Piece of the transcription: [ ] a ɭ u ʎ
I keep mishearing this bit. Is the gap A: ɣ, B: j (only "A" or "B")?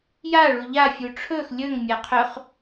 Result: B